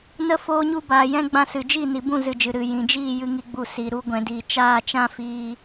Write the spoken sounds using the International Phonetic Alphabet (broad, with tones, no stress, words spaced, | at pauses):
nə˦ foː˦ɲu˦ baː˨jɛ̃˧ ɡ͡bã˧sɨ˨d͡ʒi˦˨ ni˨bũ˦˨zɨ˨d͡ʒɨ˨ ɾɨ˨ jĩ˨d͡ʒiː˦˨ jɨ˧ŋi˧ɡ͡bu˧ si˨ ɾu˧ɡʷɛ̃˨diː˨ t͡ʃaː˦˨t͡ʃã˦fiː˧